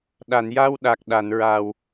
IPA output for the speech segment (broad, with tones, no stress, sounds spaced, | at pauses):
ɗ a˨˩˨ n j a˧ w ɗ a˨˩ k̚ ɗ a˨˩˨ n ɹ a˨˩ w